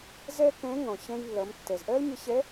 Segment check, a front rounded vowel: absent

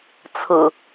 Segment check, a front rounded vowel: absent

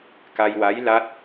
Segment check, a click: absent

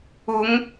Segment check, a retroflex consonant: absent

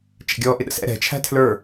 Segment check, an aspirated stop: present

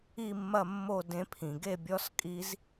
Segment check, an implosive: absent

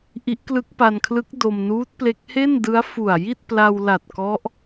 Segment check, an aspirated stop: present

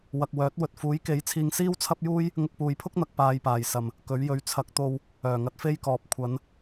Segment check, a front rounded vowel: present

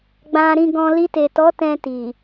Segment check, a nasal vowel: present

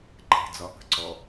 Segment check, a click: present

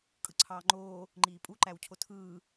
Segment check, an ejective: present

